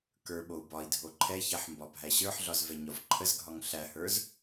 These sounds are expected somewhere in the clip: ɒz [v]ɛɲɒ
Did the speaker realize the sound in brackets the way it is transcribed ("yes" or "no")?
yes